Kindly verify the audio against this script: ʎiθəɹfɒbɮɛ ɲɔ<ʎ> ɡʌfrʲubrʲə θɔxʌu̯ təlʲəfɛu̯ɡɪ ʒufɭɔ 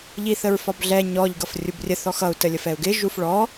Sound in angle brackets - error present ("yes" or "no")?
no